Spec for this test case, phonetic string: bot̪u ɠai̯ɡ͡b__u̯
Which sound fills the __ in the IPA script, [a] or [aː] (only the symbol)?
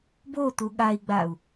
a